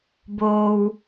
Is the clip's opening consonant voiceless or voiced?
voiced